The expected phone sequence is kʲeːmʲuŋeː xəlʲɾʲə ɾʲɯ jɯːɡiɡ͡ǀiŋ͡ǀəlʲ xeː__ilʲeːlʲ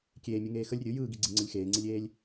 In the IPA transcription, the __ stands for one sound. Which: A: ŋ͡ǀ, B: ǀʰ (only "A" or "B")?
A